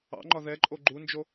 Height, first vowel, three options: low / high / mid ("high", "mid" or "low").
low